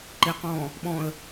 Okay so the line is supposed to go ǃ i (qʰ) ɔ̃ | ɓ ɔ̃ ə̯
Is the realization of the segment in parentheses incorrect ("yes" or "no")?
yes